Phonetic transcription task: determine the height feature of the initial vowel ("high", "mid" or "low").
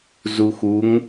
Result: high